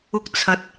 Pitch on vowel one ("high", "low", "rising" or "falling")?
high